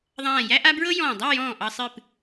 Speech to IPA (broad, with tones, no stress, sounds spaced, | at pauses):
ðˤ ãː˧˩ j æ˥ ʔ a˥ b ɹ ɤ˥ j ɔ̃ː˧˩ dˤ a˥˧ j ɔ̃ː˧˩ ʔ ɑ˧ sˤ ɨ˧˩ p